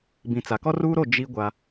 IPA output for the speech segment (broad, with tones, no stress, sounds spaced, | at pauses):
b ĩ˨ t͡s a˨ k ɔ˦ r uː˦ ɾ o˦˨ d͡ʒ i˦ ɡʷ a˦